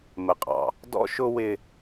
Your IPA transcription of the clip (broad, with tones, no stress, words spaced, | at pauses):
mə˨qʼɑ̰˨ | dɔ̰˦ʃʊ˦ wɪ˦